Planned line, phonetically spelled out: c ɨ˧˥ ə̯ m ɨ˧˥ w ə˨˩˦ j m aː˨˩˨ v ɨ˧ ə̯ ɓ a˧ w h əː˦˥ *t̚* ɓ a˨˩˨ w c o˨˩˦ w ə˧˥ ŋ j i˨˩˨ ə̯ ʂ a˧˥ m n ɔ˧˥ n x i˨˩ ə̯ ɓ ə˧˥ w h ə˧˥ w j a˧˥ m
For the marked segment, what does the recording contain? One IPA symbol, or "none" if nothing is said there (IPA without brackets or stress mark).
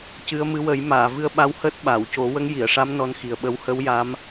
t̚